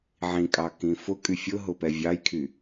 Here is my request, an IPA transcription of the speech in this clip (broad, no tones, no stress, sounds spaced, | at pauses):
ʕ ĩ kʼ ɑ k ĩ f ʊ kʼ y fʲ ʊ ɦ ʊ p ɛ vʲ ɑ j kʰ y